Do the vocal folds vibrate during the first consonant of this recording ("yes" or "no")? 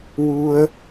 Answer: yes